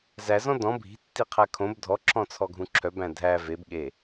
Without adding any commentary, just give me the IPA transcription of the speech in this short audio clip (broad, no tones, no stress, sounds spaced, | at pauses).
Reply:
z æ z ɔ̃ d ɔ̃ bʱ i̤ tː i qʰ æ kʰ õ b dʱ ɔ ǁʰ ɔ̃ t͡sʰ ɔ ɡʱ ũ ǁʰ œ b æ̃ dʱ æ v e b ɠ e